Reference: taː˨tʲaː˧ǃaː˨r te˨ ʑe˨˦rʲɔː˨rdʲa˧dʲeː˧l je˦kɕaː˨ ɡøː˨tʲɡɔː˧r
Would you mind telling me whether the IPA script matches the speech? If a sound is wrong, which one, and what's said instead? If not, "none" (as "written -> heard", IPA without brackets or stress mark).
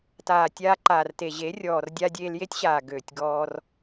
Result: k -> tʲ